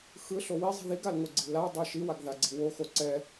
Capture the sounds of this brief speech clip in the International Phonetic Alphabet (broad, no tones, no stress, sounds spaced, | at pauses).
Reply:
x ɯ ɬ o w i zˤ i̤ ð i ɡ a l ŋ o ɡ͡ǀ i̤ l a dˤ ʌ ʃ i w a ɡ ð a ɡ͡ǀ i̤ w o x o ǀ ɛ